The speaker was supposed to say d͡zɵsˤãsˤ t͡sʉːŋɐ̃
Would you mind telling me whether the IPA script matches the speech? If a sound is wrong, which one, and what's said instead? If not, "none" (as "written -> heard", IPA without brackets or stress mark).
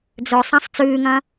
none